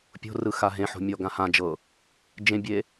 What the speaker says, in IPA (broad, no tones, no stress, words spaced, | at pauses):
pʲo̤rɯxa ɦẽħo̤mʲɔɡã hãd͡ʒɤ | d͡ʒẽbʲe